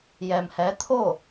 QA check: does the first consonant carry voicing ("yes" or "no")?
yes